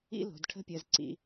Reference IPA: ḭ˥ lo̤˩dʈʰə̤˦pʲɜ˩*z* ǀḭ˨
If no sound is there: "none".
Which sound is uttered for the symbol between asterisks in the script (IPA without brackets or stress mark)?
z